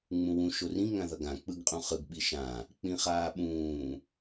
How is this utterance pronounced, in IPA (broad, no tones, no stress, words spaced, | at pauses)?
ŋ͡mũwũ ʃorĩ ŋãðʌɡã k͡pɯɡqʼũχɯɡ ɓiʃã | k͡pĩχaːɓũː